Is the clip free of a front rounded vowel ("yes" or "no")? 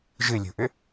no